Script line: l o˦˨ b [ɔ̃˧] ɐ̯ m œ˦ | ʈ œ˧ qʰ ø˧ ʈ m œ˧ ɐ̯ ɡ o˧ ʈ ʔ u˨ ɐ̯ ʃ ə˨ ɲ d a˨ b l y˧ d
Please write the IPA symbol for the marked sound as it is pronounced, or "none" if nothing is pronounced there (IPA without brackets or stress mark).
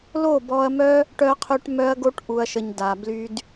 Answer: ɔ˧